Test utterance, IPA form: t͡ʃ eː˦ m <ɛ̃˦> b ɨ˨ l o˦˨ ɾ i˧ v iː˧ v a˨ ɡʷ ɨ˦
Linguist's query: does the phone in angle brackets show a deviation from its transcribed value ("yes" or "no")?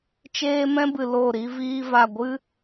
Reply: no